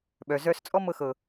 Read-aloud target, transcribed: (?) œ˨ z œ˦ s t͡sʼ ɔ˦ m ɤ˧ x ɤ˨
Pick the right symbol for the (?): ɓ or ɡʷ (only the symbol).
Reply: ɓ